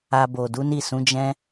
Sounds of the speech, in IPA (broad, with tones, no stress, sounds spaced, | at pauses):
a˧ b o˨ d u˨˦ n i˦˨ s ũ˨˦ d͡ʒ ɛ̃˦